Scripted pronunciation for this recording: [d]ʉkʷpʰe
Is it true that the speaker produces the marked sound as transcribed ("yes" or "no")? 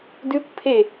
yes